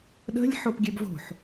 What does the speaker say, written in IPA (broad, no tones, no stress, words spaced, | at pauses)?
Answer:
ɗə̤lʲ ħopɡʲøbvo̤ħ